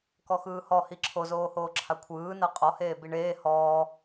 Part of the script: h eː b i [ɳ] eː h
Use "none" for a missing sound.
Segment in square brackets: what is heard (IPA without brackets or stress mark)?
ɳ